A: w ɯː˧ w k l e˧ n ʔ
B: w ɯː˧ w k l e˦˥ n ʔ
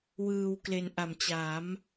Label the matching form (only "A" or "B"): A